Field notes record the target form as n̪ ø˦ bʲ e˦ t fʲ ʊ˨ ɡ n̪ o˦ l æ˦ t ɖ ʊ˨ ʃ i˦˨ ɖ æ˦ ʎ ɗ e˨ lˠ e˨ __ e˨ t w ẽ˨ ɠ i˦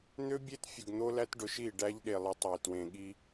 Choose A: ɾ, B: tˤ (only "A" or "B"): B